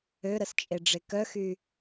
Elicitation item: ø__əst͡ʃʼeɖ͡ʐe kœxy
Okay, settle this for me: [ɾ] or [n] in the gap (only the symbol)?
ɾ